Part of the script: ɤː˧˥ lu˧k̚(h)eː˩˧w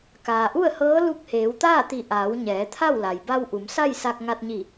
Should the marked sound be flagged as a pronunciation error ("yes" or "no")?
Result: no